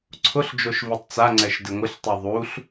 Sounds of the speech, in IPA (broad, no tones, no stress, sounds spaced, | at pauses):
ǀʰ ʊ ɬ d͡ʒ o ʃ v i tˤ t͡s a ŋ͡ǀ ɛ ʃ d ɪ ŋʷ ɪ ɬ tˤ i ðˤ u ɬ